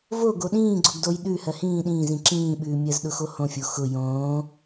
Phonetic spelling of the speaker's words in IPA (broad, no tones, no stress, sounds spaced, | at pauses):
v o ɡ o ɗ ĩː ɡ͡ǀ o ɡ d o j ɗ ʉ h ɜ h ĩː ɗ ĩː z ĩ ǁ ĩː ɓ ʉː mʲ ɜ z ɗ ʊ x o h õ fʲ o x ʊ j õː